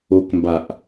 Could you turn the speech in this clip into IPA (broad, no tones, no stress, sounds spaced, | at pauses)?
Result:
o k m b a ʔ